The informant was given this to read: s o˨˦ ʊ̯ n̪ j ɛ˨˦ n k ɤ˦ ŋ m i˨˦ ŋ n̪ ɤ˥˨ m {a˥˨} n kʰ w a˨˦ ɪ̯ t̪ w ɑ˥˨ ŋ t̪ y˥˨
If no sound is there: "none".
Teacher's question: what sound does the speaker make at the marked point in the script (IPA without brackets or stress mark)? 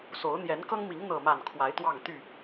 a˥˨